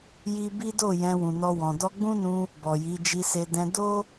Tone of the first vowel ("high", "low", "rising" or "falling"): high